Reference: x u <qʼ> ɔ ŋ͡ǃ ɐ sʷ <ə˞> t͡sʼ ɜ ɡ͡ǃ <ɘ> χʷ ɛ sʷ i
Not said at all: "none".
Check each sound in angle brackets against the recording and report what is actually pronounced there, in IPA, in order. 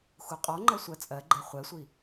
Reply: qʼ, ɜ, ɛ

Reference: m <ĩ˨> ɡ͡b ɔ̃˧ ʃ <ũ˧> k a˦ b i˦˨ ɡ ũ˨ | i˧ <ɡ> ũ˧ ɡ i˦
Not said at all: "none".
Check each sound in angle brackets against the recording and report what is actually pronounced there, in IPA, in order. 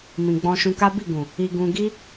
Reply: ĩ˨, ũ˧, ɡ

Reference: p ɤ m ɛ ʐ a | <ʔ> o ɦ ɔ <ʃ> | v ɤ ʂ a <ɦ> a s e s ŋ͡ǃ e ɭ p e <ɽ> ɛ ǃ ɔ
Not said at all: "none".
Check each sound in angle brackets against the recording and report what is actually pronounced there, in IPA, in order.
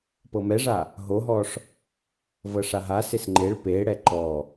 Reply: ɦ, ʂ, ɦ, ɽ

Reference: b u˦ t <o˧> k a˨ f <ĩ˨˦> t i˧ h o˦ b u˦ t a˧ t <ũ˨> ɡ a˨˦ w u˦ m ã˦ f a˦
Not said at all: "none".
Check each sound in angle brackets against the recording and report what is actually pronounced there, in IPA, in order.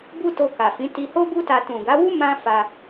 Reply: o˧, ĩ˨˦, ũ˨

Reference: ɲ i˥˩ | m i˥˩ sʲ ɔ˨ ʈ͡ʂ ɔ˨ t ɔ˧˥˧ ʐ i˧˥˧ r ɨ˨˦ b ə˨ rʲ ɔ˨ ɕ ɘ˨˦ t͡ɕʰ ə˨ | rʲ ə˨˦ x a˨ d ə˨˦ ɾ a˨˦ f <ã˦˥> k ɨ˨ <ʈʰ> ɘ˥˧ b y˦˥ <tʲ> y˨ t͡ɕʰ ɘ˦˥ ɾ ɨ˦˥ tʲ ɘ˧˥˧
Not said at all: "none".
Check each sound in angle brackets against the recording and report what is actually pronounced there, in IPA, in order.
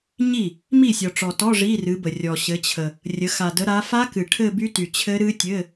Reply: a˦˥, ʈʰ, t

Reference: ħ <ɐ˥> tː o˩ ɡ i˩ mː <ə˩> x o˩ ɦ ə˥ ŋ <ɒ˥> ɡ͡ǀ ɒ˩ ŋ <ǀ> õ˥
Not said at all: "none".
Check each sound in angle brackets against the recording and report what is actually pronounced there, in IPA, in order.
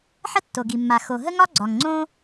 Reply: ə˥, a˩, ɒ˥, ŋ͡ǀ

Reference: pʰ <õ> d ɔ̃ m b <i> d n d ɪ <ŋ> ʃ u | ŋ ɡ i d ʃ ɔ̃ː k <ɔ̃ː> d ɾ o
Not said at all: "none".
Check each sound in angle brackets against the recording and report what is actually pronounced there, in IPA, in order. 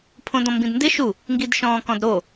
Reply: õ, ĩ, none, ɔ̃

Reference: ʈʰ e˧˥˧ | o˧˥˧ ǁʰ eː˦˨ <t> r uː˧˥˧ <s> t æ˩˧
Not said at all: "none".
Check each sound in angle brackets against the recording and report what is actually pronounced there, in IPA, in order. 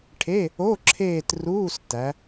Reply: t, s

